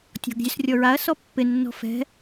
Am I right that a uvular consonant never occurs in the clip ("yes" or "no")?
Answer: yes